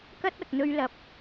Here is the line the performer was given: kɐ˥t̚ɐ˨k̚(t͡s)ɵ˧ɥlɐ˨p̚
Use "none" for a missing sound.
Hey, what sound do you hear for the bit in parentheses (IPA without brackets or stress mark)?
n̪